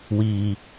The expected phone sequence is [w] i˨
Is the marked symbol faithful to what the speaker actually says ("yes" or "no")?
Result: yes